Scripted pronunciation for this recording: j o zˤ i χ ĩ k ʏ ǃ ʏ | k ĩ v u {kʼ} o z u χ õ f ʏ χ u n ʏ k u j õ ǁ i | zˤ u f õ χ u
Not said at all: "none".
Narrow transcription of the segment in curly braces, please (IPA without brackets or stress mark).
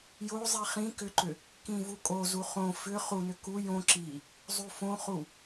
kʼ